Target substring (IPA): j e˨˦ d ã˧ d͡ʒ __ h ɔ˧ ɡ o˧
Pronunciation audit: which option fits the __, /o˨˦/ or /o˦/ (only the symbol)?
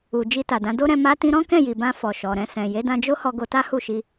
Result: o˦